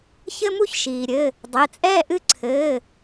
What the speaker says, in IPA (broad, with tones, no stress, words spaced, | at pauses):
çɘ˥mu˥çʃiː˩ɾʲɘ˩˧˩ | dˤe˩˧˩t͡sʼɛː˥˧ ʔɨ˥˧ǀʰɘː˩˧˩